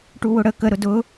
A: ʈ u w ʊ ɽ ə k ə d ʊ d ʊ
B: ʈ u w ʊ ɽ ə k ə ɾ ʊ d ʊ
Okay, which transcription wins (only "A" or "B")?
B